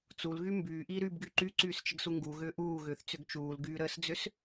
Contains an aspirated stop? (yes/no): no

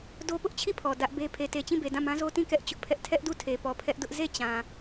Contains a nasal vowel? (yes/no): yes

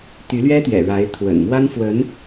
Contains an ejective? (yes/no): no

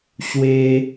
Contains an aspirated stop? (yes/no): no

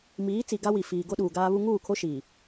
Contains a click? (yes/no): no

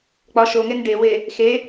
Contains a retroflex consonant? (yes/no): yes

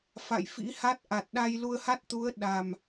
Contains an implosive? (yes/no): yes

